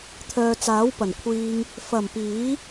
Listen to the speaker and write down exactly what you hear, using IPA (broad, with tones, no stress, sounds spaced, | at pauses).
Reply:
t̪ʰ œː˨ t͡s aː˨˥ w p ɐ˨˩ n kʷʰ iː˧ ŋ | f ɐ˨˩ m p iː˨˥